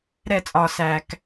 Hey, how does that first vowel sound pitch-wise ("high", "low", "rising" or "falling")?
falling